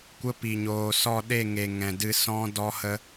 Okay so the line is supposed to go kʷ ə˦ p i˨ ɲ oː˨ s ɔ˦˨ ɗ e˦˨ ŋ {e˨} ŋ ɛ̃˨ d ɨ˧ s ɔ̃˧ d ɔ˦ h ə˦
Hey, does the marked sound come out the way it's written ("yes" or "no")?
yes